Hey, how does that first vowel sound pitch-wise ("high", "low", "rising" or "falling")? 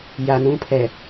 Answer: low